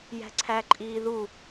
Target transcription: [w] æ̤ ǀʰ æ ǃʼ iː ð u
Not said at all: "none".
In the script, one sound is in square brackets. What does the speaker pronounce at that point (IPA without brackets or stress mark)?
j